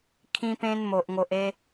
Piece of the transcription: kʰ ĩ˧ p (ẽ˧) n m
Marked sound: correct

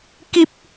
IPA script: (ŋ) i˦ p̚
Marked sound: incorrect: k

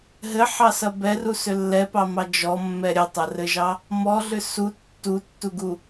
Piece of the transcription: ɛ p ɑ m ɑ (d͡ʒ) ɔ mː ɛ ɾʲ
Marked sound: correct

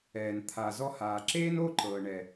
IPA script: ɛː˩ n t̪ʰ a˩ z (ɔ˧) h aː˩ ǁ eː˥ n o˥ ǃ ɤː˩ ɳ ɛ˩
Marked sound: correct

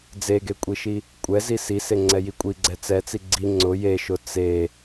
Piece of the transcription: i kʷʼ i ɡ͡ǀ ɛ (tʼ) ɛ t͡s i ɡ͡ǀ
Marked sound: incorrect: t͡s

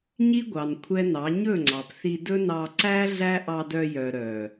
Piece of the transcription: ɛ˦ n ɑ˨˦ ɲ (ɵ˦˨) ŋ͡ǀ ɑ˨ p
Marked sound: correct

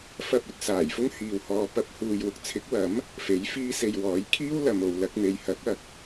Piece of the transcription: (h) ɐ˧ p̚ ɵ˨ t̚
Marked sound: incorrect: f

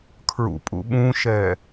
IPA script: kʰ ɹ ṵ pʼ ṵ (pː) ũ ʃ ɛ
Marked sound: incorrect: ɓ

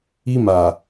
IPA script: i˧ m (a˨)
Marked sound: correct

